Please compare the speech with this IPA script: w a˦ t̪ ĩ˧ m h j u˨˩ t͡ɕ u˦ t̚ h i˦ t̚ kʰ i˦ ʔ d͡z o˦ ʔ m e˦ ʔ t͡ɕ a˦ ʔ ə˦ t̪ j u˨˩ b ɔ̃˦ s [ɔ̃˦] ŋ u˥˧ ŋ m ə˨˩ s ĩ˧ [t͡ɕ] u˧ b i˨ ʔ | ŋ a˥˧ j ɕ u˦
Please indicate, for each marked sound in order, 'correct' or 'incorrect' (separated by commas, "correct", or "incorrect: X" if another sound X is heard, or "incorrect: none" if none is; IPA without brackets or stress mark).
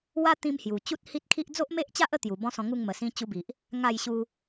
incorrect: ɔ̃˧, correct